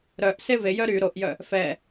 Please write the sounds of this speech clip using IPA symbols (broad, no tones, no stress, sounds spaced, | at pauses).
ɾ œ ʔ s e v e j œ ɾ y ɾ o ʔ j œ | f ɛ